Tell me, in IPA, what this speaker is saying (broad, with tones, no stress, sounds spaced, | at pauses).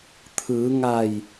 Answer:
t̪ʰ ɯː˩˧ ŋ a˧˩ j